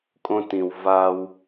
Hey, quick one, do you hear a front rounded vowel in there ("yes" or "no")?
no